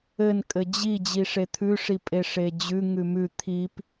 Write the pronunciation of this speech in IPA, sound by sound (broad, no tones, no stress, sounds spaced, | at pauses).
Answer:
ɘ n kʼ ɘ d͡ʑ i d͡ʑ i ʂ e t̪ʰ ʉ ʂ i pʼ e ʂ e d͡ʑ ʉ ŋ ʉ m ʉ t̪ʰ i p